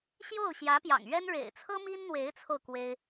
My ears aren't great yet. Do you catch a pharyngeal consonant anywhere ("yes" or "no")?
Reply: no